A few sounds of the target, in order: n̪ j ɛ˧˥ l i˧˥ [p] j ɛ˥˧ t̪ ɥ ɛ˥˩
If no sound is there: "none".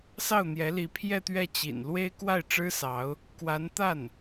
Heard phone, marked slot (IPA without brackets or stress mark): pʰ